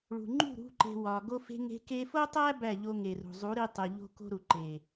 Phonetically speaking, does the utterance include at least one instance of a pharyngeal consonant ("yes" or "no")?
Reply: no